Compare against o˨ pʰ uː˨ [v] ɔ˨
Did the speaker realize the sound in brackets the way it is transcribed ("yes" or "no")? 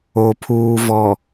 yes